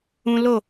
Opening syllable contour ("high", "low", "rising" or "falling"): high